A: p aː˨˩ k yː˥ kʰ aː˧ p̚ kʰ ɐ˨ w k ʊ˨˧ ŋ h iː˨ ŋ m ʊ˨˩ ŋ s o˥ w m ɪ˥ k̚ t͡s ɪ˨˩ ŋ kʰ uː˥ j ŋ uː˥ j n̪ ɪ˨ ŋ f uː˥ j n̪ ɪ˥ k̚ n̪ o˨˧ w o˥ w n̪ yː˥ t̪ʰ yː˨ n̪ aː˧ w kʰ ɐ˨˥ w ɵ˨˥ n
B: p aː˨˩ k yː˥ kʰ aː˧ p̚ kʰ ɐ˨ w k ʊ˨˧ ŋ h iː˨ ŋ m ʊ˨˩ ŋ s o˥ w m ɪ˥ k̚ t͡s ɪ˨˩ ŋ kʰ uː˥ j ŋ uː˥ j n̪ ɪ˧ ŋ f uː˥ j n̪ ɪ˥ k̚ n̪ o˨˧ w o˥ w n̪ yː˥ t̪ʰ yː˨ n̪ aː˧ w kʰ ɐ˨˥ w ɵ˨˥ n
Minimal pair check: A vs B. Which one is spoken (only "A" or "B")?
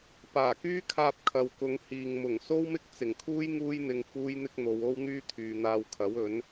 B